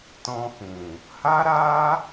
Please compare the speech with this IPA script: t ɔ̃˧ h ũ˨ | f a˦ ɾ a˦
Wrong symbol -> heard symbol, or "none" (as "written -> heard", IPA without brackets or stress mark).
f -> h